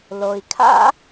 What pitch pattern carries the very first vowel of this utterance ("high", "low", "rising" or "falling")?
low